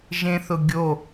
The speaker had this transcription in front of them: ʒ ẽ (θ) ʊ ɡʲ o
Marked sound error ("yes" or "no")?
no